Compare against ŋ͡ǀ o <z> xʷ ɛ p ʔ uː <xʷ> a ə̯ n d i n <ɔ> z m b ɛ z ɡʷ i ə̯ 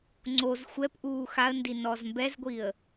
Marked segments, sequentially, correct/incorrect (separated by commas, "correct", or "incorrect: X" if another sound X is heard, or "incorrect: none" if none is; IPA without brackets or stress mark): correct, incorrect: x, correct